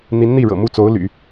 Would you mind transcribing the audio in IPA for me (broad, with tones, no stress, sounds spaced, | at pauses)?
n̪ i˧˥ n n̪ i˥˩ ɻ ɤ̰˨˩ m u˥˩ t͡s o˧˥ ʊ̯ l y̰˨˩˦